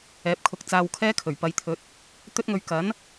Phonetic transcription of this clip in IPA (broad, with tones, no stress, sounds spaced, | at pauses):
ɛː˨˥ p̚ kʰ ʊ˧ k̚ t͡s aː˧ w kʰ ɛː˥ kʰ ɵ˨˩ ɥ p ɐ˨˧ j t̪ʰ ɵ˨˥ t̚ | t̪ ɵ˥ t̚ ŋ ɵ˧ ɥ k ɐ˨˥ n